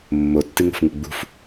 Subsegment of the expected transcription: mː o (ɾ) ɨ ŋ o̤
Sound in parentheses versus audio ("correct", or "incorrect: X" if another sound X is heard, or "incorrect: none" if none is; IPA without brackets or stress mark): incorrect: tː